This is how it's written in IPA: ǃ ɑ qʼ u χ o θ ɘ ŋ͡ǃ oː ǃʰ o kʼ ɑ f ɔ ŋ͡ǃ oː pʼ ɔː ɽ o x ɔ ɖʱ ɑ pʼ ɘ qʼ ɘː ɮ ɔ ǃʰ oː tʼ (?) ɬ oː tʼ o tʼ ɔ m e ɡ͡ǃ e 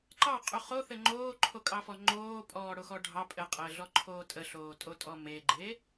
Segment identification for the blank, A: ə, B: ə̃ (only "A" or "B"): A